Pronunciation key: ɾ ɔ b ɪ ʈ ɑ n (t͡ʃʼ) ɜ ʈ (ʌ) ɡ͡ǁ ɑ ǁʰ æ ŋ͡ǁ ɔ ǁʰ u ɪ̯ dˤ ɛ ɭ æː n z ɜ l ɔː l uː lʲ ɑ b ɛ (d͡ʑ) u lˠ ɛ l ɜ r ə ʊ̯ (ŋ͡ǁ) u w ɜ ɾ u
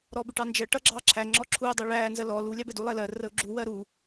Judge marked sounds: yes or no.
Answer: no, yes, no, no

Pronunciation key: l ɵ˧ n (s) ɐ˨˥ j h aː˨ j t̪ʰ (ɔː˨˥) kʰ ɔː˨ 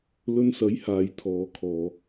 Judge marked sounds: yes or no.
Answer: yes, no

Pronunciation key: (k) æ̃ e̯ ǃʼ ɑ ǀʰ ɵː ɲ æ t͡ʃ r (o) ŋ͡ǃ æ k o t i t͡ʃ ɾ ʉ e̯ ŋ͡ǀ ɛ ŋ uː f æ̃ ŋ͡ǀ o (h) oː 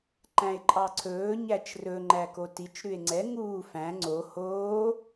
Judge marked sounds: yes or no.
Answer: no, no, yes

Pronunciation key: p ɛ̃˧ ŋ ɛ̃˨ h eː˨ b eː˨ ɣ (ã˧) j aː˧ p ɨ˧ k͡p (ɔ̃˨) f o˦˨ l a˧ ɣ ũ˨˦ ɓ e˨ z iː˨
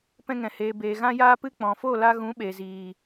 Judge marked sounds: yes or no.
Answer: yes, yes

